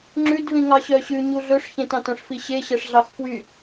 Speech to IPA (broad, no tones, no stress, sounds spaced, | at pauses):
ŋ͡ǁ ʉ d v ĩ ŋ ɑ ɕ œ ɕ ʉ ɲ u ɮ ɵ ʂ ç ẽ t ɑ̃ t œ̃ ʂ f i ɕ e ɕ ɛ ʂ ɮ ɑ x f w y